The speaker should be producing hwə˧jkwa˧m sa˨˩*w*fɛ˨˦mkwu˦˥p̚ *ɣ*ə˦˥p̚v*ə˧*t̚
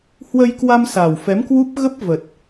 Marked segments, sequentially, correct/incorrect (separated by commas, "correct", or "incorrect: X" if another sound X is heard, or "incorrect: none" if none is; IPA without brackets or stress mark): correct, correct, incorrect: ə˨˩